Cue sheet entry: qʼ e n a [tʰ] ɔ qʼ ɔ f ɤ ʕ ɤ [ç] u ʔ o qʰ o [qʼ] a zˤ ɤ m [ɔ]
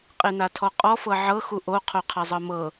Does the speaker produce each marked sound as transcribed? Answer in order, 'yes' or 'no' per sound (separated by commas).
yes, no, no, no